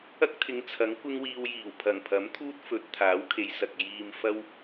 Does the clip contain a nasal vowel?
no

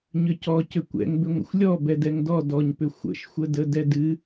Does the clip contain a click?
no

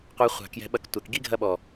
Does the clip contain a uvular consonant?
yes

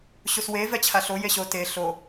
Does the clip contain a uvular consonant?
no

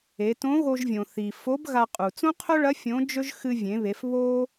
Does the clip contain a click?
no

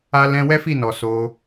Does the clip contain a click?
no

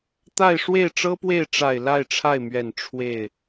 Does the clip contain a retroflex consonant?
yes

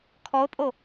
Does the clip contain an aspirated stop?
yes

